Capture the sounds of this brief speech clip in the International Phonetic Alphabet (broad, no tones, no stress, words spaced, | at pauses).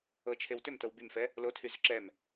ɤt͡ʃʰew tʏmtɤw bymfɛ | lotʰyzʏ ǁɛm